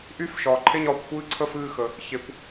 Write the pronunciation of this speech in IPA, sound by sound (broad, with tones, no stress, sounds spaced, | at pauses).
ʔ y˥˨ f ʃ ɒː˩˧ ǃʰ e˥˨ ɲ ɒː˥˨ kʷ xʷ ɨː˥˨ ǀʰ ə˥˨ f ɨː˥˨ x ə˩˧ | ç e˩˧ kʷ